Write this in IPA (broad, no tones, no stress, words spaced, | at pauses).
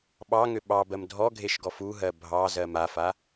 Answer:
ɓɑŋʏ ɓɑbɜm dʱɔɡʱeʃɡɔf uɦɜ bʱɑzɜm afa